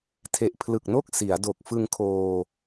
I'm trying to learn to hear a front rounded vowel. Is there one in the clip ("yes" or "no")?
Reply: no